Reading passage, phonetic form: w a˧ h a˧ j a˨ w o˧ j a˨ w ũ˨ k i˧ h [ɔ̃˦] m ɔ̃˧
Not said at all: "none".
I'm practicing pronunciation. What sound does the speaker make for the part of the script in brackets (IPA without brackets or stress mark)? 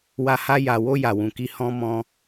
ɔ̃˦